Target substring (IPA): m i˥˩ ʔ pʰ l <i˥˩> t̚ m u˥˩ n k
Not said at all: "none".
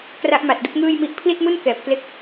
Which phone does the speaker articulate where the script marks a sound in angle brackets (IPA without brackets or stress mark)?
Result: i˥˩